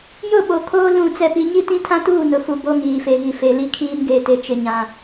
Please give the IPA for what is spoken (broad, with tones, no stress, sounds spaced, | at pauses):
j ʊ˦˨ ɓ o˨ kʰ oː˦ l ũ˦˨ t͡s ɛ˦ p i˦ ɲ i˦ t ĩ˦ tʰ ã˦ t uː˦˨ n ʊ˨ f u˨ b o˦ ŋ iː˨ f e˨ ɣ i˨ f e˨ l i˦ kʰ iː˦ n ɡ e˨ t e˨ t͡ʃ ɪ˨ ɲ ã˨